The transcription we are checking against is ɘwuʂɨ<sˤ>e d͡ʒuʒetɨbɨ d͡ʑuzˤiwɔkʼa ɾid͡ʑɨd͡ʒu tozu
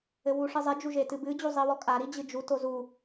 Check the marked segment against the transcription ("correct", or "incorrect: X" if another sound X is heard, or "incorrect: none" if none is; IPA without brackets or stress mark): incorrect: zˤ